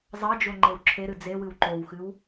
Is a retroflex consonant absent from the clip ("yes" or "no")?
yes